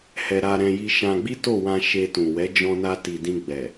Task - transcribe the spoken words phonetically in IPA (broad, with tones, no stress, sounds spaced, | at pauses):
h ɛ˧ ɾ a˧ ɾ ɛ̃˧ j i˧ ʃ ã˧ ɡ͡b i˦ t o˦˨ w ã˧ ʃ e˧ t ũ˨ w ɛ˨˦ d͡ʒ ɔ̃˧ n a˧ t i˨ d ĩ˧ ɡ͡b ɛ˨